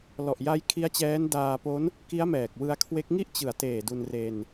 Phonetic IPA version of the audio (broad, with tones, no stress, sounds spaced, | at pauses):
l ɔ˨˩ ʔ j a˦˥ j kʰ i˦˥ a̯ t͡ɕ ɛː˦˥ n d aː˧ p o˦˥ n | k i˦˥ a̯ m ɛː˨˩ k̚ w ɯ˧ a̯ kʰ w e˦˥ k̚ ŋ i˥˩ ʔ t͡ɕ ɯ˨˩ a̯ t eː˨˩ d u˧ n r e˧ n